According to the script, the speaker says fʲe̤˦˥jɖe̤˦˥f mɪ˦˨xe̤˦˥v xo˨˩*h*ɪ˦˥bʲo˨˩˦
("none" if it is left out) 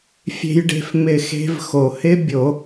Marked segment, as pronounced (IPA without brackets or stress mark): h